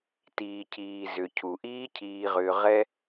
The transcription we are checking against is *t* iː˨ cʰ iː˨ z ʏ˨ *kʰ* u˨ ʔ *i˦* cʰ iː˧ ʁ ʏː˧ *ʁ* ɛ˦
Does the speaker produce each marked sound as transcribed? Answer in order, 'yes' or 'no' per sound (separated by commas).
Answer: yes, no, no, yes